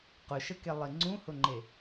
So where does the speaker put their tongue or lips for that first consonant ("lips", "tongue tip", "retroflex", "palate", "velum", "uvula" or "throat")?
uvula